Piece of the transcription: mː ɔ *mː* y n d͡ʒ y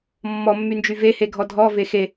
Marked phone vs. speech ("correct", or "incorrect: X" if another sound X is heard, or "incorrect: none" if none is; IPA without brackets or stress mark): correct